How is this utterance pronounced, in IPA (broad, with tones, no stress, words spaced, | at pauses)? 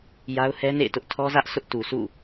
ja˦ʊ̯hɛ˦nḛ˦˨ɪ̯tʊ˦ʔ tʰɔ˦zä˦ʔ sʰʊ˦ʔtu˨sʰṵ˦˨